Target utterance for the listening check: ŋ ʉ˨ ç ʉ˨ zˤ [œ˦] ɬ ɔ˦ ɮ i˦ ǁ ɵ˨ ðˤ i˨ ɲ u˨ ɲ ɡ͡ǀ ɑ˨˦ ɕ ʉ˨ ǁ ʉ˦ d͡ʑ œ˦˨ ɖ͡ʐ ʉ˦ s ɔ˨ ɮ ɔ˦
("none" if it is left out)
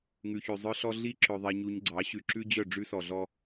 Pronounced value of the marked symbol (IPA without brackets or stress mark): œ˦